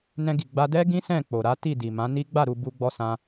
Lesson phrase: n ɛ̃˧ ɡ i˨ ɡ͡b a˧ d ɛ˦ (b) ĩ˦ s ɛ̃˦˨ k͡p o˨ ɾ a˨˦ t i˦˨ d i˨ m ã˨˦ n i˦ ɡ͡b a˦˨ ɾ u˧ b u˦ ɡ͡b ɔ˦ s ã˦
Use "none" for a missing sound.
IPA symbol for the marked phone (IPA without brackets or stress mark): ɡ